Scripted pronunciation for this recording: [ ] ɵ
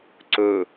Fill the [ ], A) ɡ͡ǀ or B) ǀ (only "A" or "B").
B